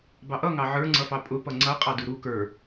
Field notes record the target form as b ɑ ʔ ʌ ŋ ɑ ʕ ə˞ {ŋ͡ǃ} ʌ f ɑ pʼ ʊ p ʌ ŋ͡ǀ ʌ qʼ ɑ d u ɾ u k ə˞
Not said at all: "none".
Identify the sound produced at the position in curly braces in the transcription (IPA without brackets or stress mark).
ŋ͡ǀ